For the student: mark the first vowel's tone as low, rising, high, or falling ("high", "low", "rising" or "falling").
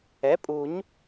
rising